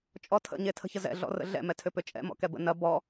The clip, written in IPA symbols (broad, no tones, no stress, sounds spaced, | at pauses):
t͡ʃʼ ɔ tʰ ə̰ ɲ e tʰ ə̤ ç ə z ɛ̰ ɮ ɔ̰ r ə̰ ɮ ɛ̰ m ɛ tʰ ʏ p ʏ t͡ʃʼ ɛ̰ m ɔ̰ k ɛ b ə̰ n ɐ b ɔ